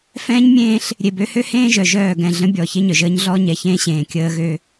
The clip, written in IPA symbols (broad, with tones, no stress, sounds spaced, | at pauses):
f ɛ̃ː˦ ɲ mʲ ẽː˦ ɬ | ɾʲ e˨ b ø˦ h ø˦ h ẽː˦ ʒ œ˨ ʒ œː˦˨ ɡ ɛ̃˨ ɮ ə̃˦ bʲ ɔ˨ ç e˦ ɲ œ˨ ʒ əː˦ ɲ ɮ ɔː˦ ɲ ɛ˨ ç ẽː˦ ɕ ẽː˨ kʲ əː˦ ɣ ø˦